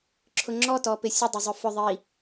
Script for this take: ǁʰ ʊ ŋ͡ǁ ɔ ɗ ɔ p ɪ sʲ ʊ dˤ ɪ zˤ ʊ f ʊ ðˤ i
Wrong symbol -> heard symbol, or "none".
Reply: ɗ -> t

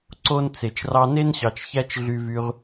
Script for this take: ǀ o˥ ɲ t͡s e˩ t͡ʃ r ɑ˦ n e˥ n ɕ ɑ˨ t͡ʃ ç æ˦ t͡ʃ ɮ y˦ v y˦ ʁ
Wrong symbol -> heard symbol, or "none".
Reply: ɲ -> n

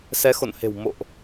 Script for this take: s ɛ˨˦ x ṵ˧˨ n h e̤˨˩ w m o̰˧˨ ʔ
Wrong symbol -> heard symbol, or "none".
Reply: ṵ˧˨ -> o̰˧˨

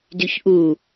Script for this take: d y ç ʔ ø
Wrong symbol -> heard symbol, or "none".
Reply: ø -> u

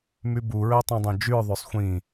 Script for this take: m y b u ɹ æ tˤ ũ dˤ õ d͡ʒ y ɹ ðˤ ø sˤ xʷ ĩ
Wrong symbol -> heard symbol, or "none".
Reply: none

